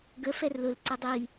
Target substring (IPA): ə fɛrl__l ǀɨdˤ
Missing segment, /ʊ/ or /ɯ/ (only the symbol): ʊ